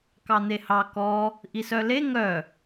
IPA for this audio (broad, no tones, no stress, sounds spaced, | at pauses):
k ɑ n̪ e h ɑ k ɔ | ʔ i s œ l e ŋ œ